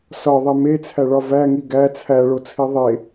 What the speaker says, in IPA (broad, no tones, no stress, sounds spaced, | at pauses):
s ɒ ðˤ e m e t͡sʰ æ ɭ ɒ v æ ŋ i ɡ æ t͡sʰ æ ɭ o t͡sʰ i ðˤ e